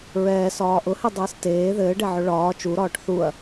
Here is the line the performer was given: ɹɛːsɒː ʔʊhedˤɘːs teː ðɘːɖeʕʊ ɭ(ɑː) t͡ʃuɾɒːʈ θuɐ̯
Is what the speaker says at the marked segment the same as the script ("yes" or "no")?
no